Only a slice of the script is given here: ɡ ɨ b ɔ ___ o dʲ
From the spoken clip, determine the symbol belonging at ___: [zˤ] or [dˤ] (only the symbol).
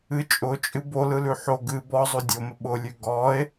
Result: zˤ